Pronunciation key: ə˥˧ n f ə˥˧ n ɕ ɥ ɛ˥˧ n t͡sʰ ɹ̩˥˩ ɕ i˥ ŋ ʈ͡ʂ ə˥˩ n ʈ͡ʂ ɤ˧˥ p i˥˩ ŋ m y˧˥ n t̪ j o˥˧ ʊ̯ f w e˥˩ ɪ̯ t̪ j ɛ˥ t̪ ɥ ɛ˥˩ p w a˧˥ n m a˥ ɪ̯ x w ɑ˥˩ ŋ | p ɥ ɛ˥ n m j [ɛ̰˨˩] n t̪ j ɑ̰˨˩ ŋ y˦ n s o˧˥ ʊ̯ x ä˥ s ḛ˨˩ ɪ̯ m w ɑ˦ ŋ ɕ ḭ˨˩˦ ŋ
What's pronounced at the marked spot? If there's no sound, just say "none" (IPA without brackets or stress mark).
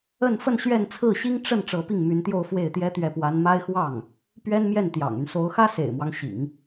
ɛ˥˩